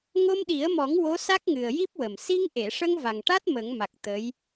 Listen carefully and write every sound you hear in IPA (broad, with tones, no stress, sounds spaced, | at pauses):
ŋ o˧ m ɗ i˨˩˦ ə̯ m ɔ˨˩˦ ŋ w o˧˥ s a˦˥ k̚ ŋ ɨ˨˩ ə̯ j i˦˥ p̚ w ə˨˩ m s i˧ ŋ ʔ e˨˩˨ ʂ ə˧ ŋ v a˨˩ ŋ ʈ a˦˥ t̚ m ə˨˩˦ ŋ m a˨˩ k̚ t̪ ə˧˥ j